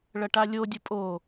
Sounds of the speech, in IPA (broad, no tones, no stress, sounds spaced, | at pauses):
ɭ ɐ ʈ a lʲ o dʲ ə pʼ o